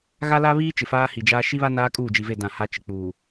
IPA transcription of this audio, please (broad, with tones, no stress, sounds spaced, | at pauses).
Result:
ɣ a˦ l a˦ β iː˦ t͡ʃ ɪ˨ f aː˦ h i˨ d͡ʒ aː˦ ʃ i˦ β a˦ n aː˦ kʼ uː˦˨ d͡ʒ i˨ v e˦˨ d ã˦˨ h a˦ t͡ʃ ɪ˨ k͡p uː˨